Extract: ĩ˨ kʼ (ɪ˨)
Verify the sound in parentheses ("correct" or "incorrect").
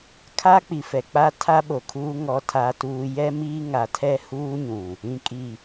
incorrect